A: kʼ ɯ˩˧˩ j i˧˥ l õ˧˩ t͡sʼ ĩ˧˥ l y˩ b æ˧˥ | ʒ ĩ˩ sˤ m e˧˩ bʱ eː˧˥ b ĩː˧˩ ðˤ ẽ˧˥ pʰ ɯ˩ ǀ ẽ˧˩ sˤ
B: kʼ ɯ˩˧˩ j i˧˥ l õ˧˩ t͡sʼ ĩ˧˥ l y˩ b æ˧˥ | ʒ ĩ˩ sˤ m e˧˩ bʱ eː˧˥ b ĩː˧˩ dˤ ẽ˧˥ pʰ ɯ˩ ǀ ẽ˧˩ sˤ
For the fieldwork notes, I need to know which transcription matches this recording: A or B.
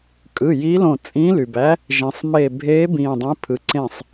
B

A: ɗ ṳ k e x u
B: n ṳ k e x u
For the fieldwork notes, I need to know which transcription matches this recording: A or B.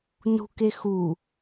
B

